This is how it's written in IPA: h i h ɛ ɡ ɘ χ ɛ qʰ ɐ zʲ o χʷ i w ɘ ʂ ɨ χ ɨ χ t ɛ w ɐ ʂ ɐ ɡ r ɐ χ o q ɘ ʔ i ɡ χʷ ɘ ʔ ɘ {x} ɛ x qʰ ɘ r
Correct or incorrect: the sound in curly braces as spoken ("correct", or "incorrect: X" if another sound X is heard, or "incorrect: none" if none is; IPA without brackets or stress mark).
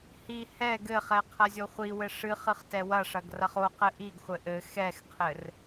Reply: correct